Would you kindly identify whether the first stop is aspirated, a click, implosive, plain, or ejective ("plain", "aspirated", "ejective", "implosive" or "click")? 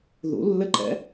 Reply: click